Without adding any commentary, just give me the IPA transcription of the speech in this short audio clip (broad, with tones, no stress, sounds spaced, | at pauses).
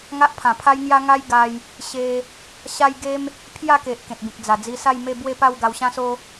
ŋ a˦ ʔ pʰ ã˨˩ pʰ a˦ j ŋ j a˦ ŋ a˦ j ɡ a˧ j | ɕ e˧ | ɕ a˦ j ɡ e˦ m | pʰ j a˥˧ k e˨ ʔ k ẽ˨ t̚ b ĩ˨ k̚ d͡z a˨˩ d͡z i˧ s a˥˧ j m e˥˧ b w e˥˧ p a˥˧ w ɡ a˧ w ɕ ã˦ s o˦